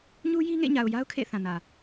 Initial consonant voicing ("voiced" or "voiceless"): voiced